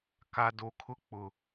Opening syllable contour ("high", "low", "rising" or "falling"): low